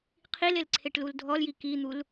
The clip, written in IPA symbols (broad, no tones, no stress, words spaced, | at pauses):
qʰilel ǀʰeʈluldʱɔlji kin̪ul